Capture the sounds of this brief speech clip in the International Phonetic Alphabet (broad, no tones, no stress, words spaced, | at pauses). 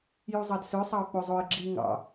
juzˤɑdsø sˤɑʊ̯k͡pozˤoɪ̯ɡ͡ǁi ŋɑ̰